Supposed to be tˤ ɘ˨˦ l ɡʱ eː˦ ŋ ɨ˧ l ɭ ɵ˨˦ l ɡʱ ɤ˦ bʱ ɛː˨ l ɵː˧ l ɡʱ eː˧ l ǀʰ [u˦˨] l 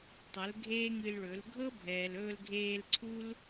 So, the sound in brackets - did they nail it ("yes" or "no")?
no